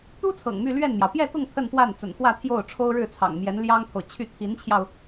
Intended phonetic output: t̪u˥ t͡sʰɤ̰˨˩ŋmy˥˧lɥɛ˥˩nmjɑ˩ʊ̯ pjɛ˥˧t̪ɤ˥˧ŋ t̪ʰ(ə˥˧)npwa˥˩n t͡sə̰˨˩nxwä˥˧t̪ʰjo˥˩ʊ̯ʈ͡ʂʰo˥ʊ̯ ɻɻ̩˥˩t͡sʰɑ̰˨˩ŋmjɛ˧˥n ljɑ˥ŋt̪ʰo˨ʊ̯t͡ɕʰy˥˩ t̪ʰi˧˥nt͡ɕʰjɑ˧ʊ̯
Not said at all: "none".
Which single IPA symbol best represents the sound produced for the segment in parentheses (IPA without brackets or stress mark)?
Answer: ə˥˧